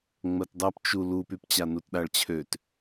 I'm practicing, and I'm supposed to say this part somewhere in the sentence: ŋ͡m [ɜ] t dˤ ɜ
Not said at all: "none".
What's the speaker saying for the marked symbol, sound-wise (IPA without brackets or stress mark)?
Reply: ɜ